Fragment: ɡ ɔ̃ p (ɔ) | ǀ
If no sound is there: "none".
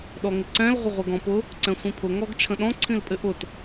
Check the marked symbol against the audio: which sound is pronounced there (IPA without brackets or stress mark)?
ʊ